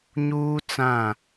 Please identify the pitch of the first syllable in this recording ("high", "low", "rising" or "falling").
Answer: high